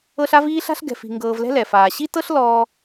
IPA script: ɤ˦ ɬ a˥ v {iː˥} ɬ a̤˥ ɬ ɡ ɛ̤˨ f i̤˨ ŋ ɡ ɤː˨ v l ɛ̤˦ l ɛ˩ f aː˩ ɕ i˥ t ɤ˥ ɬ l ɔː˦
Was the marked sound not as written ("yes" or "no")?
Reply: no